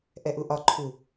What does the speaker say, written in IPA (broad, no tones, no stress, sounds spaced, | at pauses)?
ʔ ɛ ʔ u ʔ ɒ ǃʰ u